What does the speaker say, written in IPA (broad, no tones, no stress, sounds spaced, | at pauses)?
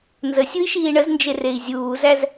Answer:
n z ə sʲ u i̯ ʃ iː ɳ ə z n d͡ʒ e r e i̯ zʲ uː z æ z